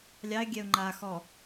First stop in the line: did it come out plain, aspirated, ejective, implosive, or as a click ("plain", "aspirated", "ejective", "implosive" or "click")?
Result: plain